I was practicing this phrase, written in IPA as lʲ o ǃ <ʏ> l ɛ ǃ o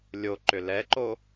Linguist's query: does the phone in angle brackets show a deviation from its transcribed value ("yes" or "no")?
no